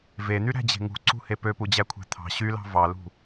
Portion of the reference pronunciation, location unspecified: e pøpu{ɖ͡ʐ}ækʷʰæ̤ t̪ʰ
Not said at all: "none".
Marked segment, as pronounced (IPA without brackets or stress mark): d͡ʑ